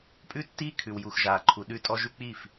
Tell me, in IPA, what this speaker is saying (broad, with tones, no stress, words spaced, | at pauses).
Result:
pʼʉ˦tːiː˦ kʰʉ˨w ju˨x ʒaː˨ ǃʰu˨ ɗʉ˦tʼɔ˦ʒʉ˦k͡piː˦˨f